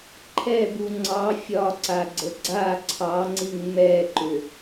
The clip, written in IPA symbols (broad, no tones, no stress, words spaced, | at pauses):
ǃʰɛbu ŋ͡ǀɑ fʲɒǀaɡ͡ǀə ɡ͡ǀa ǀʰɑŋ͡ǀiŋ mɛǃʏ